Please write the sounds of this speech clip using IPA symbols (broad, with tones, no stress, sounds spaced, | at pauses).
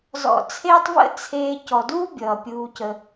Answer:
z ɔ̰˧ t͡sʰ eː˦ tˤ v ə̰˦ t͡sʰ eː˧ c ɔ˨ d uː˦ bʲ ʌː˨ pʲ uː˧ c ə˧